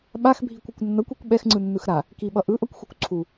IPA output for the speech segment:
ɓ a x bʱ i kʷ ʌ kʷ nː ʌ kʷ i kʷ ɓ ɛ x ŋ͡ǀ ɯ nː ɯ x ɾ a | k i ɓ ʌ ʔ ɯ ʔ ʌ kʷ x u kʷ ǀʰ u

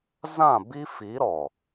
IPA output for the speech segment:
z ã˦˨ b i˦ f i˨˦ ɾ ɔ˨

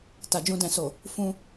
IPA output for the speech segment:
t a˨ d͡ʒ ũ˧ d ɛ̃˨ s o˨ | f ũ˧

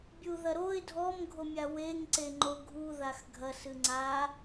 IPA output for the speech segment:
bʲ u ð ɐ ɾ o ɪ̯ dʱ ɔ m ɡʱ o mʲ a w e ŋ ǀ e ŋ͡ǃ o ɡʱ u ð a x ɡʱ ɐ s ɨ ŋ͡ǀ a

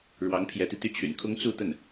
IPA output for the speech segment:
ɻ w ɑ˧˥ ŋ pʰ j ɛ˧˥ t̪ i˧ t̪ y˥˩ t͡ɕʰ y̰˨˩ n kʰ ʊ˥ ŋ t͡s u˥˧ t̪ ə˥˩ n

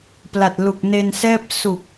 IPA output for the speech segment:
p l a˨˩ t̚ l u˨˩ k̚ n e˧ n s ɛː˥˩ p̚ s u˨˩ k̚

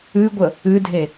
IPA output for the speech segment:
ɨ ɡʷ ə | ɨ dʱ e

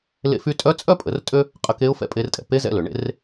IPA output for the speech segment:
l ḛ˧ f y˧ tʼ œ˧˥ t͡sʼ œ˥ pʼ ə˩˧ r tʼ ø˥ | qʼ ə˧ k e˧˥ ʊ̯ f ɛ̰˧ pʼ e˧ r tʼ ɛ̰˩ p e˧˥ z ɛ̰˧ l ø˩ ɳ ḛ˧˥ r

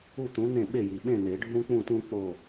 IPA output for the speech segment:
u˥˨ t̪ ũ˨˥ n̪ ẽ˥˨ ɓ e˥˨ j i˩ ɓ ẽ˥˨ n̪ e˨˩˦ ɖʱ ũ˥ k͡p ũ˥˨ t ũ˥ k͡p o˥˨

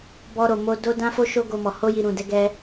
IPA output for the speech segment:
b ɔ˧ ɾ o˨ m o˧ d o˦ d ã˦ f o˦ ʃ o˦ ɡ o˧ m ɔ˨ h o˧ j i˨ ɾ ũ˨ d ɛ˧ ɡ ɛ˧

